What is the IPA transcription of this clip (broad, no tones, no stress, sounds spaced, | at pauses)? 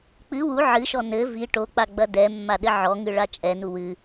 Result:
k͡p ɨ w u ʕ ɨ ʃ ɔ n ɘ v i ʈ o k͡p a ɡ͡b ɐ d ɛ mː a ɗ ɘ ʕ ɔ ŋ ɨ ɭ a t͡ʃʼ ɛ n u w ɨ